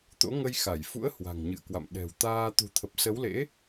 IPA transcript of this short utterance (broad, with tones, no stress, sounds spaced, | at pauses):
t̪ o̰˧˥ ŋ ə˧ j x a˧˩ j f ṵ˧˥ ə̯ h w a̤˨˩ ŋ ɲ ɨ̰˧˨ ə̯ k w a̰˧˨ m ɗ ɛ̤˨˩ w t̪ aː˧ t̪ ṳ˨˩ t̪ʰ ə˨˩ p̚ s ə˨˦ w l ḛ˧˥